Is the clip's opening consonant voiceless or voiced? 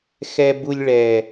voiceless